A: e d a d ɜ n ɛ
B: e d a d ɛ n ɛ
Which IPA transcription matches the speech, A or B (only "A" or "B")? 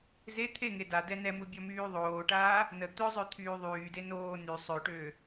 B